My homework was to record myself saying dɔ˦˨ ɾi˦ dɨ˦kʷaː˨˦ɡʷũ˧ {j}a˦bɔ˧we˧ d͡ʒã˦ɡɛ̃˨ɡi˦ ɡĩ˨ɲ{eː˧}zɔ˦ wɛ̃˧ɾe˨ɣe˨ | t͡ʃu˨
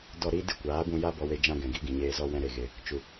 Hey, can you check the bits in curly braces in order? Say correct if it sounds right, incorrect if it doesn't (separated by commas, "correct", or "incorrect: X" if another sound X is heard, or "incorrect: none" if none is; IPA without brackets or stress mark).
correct, correct